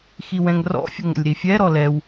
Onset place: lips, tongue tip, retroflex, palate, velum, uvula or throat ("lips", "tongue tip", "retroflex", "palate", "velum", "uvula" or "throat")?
velum